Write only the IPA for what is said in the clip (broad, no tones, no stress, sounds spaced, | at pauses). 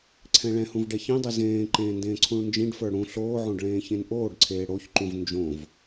ǀʰ ɛ̃ ɭ ɛ̃ h ũ v ɖ ɛ ç ĩ dˤ i z ẽː ǃ ẽː n d ẽː ǀʰ ũ ɭ n d͡ʒ ĩ ɖ f ə˞ ɽ ũ ɬ oː ʕ õ ɖ ɭ ẽː ç ẽ n ʔ oː ɖ ǀʰ eː ɽ o ç ǃ ũ v n d͡ʒ õ v